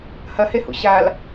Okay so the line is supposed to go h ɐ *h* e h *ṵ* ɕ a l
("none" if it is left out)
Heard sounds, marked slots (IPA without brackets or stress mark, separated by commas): h, ṵ